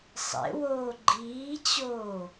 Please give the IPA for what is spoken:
sˤ ḛ w oː ɡ͡ǃ iː t͡ɕ oː

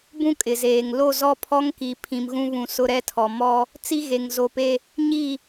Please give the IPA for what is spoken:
b ũ˦ kʼ ɪ˨ z eː˨ ŋ l o˦˨ z ɔ˦ pʰ ɔ˦ ŋ k i˨ pʰ ĩ˨ m ɣ ũ˦ β ũ˨ s ʊ˦ ɾ ɛ˦ tʰ ɔ˨ m ɔ˦ | t͡s i˦ ɣ e˨ ŋ z o˨ p e˦ | ɲ i˦˨

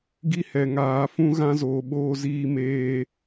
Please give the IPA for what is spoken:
ɡ i˦ h ɛ˨ ŋ aː˨˦ f ũ˦ ɣ ã˦ z oː˨ ɓ oː˦ z iː˦ m eː˦

